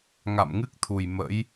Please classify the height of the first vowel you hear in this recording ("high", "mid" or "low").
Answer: low